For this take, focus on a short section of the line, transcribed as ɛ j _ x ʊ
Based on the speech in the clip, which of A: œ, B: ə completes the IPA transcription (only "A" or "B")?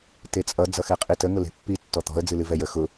B